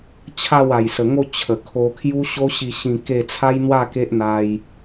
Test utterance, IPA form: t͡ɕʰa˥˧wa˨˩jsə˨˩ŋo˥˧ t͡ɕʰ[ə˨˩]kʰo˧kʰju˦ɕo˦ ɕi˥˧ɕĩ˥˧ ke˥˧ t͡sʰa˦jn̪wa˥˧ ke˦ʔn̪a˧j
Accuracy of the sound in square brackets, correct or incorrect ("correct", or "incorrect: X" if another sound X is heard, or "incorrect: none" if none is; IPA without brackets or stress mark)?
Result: correct